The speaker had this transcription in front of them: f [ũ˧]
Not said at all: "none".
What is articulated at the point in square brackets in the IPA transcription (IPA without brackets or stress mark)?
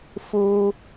u˧